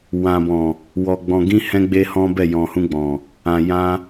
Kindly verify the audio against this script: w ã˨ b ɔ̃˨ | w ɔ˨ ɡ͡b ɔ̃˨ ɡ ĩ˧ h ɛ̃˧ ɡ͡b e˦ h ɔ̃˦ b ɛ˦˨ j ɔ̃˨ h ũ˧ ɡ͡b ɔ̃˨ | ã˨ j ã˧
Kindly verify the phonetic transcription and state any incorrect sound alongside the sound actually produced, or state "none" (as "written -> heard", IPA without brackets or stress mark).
none